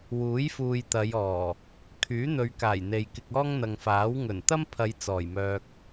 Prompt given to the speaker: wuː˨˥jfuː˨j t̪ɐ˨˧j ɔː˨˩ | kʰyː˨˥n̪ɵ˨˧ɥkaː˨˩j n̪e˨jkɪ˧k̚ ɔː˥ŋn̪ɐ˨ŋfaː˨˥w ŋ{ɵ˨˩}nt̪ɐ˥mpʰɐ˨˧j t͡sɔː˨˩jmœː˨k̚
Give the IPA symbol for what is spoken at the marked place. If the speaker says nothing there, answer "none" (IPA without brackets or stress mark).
ɵ˨˩